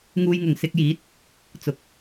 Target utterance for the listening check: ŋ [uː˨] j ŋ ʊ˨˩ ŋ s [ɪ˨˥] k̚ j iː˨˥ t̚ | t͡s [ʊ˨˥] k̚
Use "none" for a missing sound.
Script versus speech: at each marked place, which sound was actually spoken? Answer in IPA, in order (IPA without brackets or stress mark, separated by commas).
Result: uː˧, ɪ˧, ʊ˨